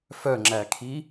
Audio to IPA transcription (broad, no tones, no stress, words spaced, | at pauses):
fœŋ͡ǁækʰi